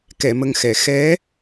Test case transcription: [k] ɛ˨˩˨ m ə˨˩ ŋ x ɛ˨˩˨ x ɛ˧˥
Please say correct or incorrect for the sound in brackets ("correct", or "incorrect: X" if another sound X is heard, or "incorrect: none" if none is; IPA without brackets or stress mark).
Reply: correct